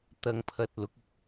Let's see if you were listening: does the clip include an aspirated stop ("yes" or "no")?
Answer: yes